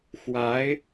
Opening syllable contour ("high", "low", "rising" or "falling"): rising